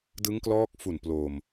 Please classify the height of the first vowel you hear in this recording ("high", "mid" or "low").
high